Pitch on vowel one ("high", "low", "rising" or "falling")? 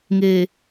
low